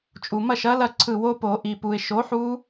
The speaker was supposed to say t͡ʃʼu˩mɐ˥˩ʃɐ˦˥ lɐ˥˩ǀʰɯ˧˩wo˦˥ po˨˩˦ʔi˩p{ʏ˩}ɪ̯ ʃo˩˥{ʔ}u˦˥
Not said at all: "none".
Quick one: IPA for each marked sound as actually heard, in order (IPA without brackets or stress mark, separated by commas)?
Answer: u˩, ħ